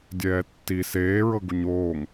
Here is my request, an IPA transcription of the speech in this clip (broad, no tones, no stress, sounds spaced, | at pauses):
dʲ ɛː tː i s eː ɹ ɤ ɡ u ɲ oː ŋ